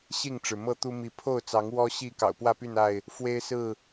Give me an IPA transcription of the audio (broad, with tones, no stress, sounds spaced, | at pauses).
ɕ i˥˨ ŋ ʈ͡ʂ ɻ̩˩ m ɤ˥˨ t̪ u˦ m i˨˦ pʰ o˥˨ ʊ̯ t͡s ɑ˨˦ ŋ w ɔ˦ ɕ i˥˨ k ɑ̰˨˩ ʊ̯ p w ä˥˨ p y˥˨ n a˥˨ ɪ̯ | f w e˦ ɪ̯ s ɹ̩˥˨